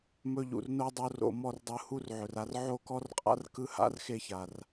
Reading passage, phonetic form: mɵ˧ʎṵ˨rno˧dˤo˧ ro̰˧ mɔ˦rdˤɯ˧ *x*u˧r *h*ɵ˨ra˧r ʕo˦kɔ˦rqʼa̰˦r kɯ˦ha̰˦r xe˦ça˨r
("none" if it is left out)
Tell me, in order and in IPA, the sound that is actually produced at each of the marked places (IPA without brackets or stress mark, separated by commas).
h, ʕ